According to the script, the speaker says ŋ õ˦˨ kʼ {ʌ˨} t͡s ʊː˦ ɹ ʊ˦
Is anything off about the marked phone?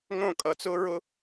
no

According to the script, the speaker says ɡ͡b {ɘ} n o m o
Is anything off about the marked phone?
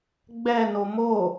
yes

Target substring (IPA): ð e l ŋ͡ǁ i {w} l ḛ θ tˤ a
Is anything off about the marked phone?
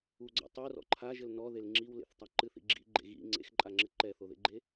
no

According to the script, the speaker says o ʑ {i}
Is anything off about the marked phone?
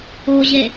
yes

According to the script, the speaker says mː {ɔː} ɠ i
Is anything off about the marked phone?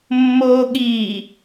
yes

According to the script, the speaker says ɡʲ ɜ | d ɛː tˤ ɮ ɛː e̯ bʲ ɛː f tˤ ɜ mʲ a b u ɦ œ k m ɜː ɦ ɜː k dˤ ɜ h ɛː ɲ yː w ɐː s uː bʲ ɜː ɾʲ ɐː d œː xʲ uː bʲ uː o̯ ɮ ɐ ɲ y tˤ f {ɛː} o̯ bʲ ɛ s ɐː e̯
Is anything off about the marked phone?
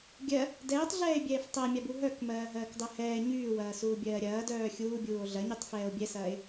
no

